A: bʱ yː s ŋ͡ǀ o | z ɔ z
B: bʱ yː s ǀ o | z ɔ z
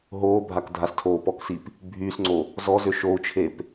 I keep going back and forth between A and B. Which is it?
A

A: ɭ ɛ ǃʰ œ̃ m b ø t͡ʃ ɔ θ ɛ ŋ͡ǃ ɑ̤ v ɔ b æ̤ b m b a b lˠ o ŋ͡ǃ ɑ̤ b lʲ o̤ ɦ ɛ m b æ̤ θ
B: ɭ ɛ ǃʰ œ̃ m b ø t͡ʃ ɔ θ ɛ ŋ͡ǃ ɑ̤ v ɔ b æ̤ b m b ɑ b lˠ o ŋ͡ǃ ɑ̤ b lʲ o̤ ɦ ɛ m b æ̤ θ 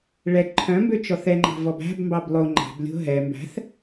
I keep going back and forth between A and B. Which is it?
B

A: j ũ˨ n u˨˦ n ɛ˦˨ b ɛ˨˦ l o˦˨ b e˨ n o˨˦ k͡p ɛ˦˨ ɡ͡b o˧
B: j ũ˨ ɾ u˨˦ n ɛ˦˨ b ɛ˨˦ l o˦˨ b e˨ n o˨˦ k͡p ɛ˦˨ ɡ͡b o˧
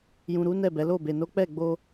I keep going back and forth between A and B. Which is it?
B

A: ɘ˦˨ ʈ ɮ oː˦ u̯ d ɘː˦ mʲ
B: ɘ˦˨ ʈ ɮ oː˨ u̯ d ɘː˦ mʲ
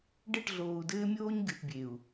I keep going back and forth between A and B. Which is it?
B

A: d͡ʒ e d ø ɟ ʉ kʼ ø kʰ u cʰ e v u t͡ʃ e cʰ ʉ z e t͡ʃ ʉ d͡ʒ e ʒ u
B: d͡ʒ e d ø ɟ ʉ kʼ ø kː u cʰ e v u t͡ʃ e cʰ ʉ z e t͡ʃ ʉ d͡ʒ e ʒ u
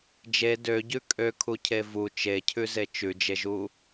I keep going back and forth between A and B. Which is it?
A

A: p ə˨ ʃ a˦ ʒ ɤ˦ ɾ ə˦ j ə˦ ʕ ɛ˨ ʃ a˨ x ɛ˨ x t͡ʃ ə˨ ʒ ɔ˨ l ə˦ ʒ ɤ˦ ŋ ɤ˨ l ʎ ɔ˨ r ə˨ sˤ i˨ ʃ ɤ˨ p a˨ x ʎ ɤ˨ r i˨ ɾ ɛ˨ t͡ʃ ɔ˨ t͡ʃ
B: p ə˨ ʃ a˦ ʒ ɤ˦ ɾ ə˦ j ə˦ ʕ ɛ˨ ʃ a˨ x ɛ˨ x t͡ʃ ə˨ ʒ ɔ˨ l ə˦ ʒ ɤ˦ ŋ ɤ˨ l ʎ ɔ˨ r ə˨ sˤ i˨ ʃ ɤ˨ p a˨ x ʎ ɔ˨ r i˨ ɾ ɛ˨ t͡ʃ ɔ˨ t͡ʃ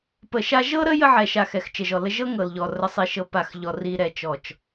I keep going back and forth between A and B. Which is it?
B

